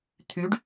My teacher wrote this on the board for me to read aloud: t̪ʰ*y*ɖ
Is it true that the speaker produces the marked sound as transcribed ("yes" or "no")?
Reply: yes